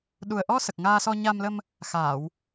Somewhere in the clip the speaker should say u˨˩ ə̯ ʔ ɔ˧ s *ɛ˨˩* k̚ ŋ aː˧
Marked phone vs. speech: incorrect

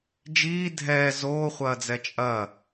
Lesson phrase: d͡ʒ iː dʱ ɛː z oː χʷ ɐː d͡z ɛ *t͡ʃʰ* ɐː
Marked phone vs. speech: incorrect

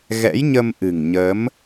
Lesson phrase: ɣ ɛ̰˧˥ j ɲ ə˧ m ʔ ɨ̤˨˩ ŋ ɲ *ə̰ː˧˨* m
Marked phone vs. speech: incorrect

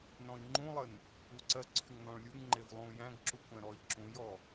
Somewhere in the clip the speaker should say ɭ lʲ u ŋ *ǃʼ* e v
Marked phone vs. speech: incorrect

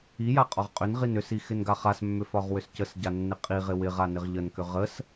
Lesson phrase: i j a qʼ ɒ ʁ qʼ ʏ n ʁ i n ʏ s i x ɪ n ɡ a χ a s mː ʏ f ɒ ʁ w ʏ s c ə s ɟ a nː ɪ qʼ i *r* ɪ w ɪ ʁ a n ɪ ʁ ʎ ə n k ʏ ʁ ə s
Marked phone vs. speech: incorrect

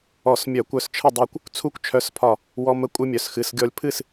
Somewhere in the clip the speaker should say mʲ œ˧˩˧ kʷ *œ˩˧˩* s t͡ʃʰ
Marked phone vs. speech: incorrect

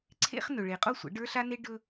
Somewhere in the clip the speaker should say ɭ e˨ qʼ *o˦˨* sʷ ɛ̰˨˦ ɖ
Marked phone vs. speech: correct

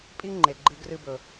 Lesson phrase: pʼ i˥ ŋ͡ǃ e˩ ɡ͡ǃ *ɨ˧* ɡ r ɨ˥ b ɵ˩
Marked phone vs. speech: correct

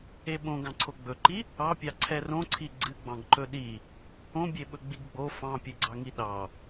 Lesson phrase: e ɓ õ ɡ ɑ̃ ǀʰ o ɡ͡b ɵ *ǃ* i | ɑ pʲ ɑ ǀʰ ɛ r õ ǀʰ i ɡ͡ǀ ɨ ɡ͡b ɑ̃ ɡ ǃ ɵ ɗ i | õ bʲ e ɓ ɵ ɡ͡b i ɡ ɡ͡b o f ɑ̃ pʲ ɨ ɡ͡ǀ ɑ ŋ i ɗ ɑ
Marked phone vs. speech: correct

